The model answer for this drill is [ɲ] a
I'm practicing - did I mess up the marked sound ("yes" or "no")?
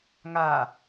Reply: yes